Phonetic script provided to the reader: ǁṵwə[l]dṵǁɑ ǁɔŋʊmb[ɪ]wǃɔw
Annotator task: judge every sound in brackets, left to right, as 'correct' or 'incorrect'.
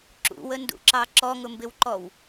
incorrect: n, correct

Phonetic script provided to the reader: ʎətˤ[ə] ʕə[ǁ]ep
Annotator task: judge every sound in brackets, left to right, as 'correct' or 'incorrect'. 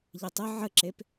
correct, correct

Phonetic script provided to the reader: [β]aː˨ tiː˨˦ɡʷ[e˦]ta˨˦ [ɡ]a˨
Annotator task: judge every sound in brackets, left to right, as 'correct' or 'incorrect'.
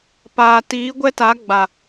incorrect: p, incorrect: ɛ˦, incorrect: ɡ͡b

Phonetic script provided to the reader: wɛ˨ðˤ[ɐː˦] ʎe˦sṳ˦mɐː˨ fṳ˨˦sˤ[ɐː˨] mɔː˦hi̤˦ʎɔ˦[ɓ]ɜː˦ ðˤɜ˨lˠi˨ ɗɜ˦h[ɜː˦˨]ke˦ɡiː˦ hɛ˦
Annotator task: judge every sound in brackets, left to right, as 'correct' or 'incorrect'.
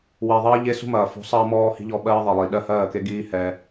correct, incorrect: ɐː˦, correct, correct

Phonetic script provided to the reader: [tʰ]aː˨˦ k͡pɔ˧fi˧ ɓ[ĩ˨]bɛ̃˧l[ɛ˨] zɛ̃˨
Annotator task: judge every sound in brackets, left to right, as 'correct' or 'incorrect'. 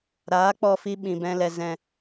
incorrect: ɾ, correct, correct

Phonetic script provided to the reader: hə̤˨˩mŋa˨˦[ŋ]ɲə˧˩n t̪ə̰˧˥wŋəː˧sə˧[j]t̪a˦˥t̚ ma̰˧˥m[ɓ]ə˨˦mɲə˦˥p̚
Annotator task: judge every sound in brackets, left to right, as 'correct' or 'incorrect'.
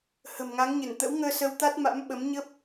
correct, incorrect: w, correct

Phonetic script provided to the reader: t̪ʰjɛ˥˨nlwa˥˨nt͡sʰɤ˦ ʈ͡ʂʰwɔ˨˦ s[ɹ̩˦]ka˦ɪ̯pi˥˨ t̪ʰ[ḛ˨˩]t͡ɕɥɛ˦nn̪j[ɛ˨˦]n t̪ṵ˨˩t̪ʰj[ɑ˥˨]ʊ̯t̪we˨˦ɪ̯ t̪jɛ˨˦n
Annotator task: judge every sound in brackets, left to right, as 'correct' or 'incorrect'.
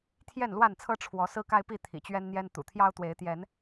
correct, incorrect: ḭ˨˩, incorrect: ɛ˦, incorrect: ɑ˦

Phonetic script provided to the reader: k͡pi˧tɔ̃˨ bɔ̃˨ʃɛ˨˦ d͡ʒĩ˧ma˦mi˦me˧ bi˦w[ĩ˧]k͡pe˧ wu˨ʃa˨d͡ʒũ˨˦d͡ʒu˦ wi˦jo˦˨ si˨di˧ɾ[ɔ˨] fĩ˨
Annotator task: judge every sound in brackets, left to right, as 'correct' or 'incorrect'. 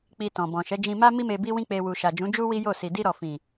incorrect: ĩ˦, correct

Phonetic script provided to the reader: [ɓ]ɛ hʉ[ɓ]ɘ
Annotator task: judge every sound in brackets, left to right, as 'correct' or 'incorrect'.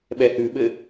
correct, correct

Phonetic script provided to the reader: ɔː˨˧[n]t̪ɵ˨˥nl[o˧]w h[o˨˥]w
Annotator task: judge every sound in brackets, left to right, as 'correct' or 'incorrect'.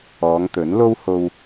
incorrect: ŋ, incorrect: o˥, incorrect: o˧

